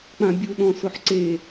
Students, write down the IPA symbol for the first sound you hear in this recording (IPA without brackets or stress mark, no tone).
k͡p